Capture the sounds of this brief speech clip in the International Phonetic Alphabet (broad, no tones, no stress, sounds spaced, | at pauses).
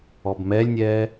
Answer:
ɔ b m ɛ lʲ nʲ ɛː